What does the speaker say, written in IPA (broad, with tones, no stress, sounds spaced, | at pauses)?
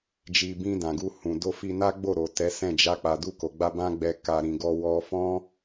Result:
d͡ʒ i˨ b ĩ˧ d ã˨ ɡ u˧ h ũ˨ d o˧ f i˧ n a˦ ɡ͡b o˦˨ ɾ o˨ t ɛ˨˦ s ɛ̃˦˨ d͡ʒ a˧ k͡p a˨ d u˧ k o˨ ɡ͡b a˧ b ã˦ ɡ͡b ɛ˧ k a˧ ɾ ĩ˨ ɡ ɔ˧ w ɔ˧ f ɔ̃˦